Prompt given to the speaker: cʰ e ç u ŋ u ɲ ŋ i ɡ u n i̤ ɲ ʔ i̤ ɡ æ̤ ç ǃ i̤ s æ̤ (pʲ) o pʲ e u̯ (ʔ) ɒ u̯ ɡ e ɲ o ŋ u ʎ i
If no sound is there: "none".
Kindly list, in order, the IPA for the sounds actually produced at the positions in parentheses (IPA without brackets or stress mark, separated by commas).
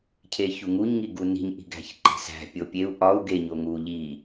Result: pʲ, ʔ